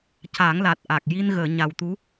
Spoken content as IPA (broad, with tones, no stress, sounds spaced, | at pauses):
c a˨˩˦ ŋ l a˨˩ t̚ ʔ a˨˩ k̚ j i˧ n ɣ əː˨˩˨ ɲ a˨˩ w t̪ u˧˥